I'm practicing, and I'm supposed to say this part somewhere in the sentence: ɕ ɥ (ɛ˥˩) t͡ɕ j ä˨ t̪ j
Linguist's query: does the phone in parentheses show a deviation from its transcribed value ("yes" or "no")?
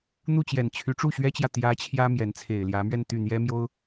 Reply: yes